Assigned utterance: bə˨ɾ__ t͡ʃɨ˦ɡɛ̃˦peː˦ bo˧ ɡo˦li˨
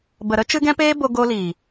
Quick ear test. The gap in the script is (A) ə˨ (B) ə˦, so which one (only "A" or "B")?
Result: B